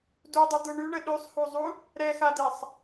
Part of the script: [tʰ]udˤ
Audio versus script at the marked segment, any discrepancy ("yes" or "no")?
yes